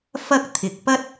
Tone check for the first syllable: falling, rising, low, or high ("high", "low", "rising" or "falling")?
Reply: high